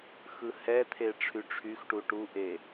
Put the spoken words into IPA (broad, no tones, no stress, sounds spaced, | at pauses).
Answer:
x ɯ h ɛ t̪ʰ e ʈ͡ʂʰ y ʈ͡ʂʰ y x ʈ u ʈ u ʔ e